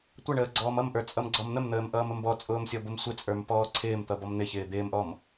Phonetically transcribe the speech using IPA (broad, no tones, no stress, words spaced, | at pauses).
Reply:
tʷʌɳəː ɡ͡ǀɔːmʌmʔə˞ t͡sʼʌmɡ͡ǀɔmn̪əmn̪əːm ʔʌːməmbɔt͡sʼʊːm sʲɔbʊmsʷɪt͡sʼə˞m pɔːǀʰɪːmt̪ʌ bɔmn̪ɪçɪː d̪ɪːmʔɔm